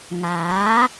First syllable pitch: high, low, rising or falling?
rising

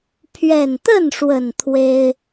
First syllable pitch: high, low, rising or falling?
low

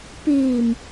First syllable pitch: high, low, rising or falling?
low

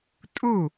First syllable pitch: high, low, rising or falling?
falling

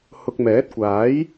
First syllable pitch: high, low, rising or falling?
low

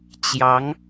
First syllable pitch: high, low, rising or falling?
rising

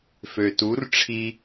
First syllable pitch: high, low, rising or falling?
low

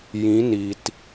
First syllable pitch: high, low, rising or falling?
rising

